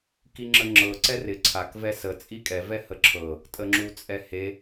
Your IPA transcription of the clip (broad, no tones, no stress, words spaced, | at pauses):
kiŋ͡ǁəŋ͡ǁɤ ǀɛrɪ ǀʰak vɛsə t͡sʼikʼɛ vɛhəǁʰɤ | tʼəŋ͡ǁut͡sʼɛhe